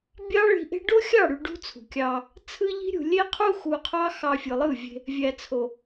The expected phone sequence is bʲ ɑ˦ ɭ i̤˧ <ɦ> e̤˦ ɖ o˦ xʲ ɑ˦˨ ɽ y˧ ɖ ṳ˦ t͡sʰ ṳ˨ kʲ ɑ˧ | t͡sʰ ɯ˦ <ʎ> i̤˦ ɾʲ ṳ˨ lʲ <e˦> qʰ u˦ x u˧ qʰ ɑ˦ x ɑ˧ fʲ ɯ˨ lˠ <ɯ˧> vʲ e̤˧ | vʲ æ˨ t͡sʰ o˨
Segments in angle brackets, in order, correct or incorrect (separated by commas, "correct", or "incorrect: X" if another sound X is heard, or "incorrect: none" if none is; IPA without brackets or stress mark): incorrect: ʔ, correct, correct, incorrect: ɯ˦˨